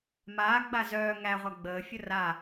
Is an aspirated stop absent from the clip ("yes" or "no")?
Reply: yes